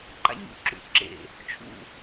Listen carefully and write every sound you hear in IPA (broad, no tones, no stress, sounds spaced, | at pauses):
ǃ a̰ ɲ ṵ ǁ ṵ ǁ ḛ | t͡ʃʰ ṵ